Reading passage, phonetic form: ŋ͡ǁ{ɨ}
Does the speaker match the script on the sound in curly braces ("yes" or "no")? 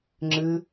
yes